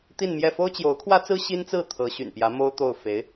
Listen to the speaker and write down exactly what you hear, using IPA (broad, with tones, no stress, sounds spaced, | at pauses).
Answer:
t̪ i˥˧ n m j ɛ˥˩ f o˥ ʊ̯ t͡ɕ j o˧˥ ʊ̯ kʰ w ä˥ t͡s ɹ̩˥ ɕ i˥ n t͡s ɹ̩˥˩ t̪ʰ ɤ˧˥ ɕ y̰˨˩ n p j ä˧˥ m o˥ ʊ̯ t̪ o˥˩ ʊ̯ f e˧˥ ɪ̯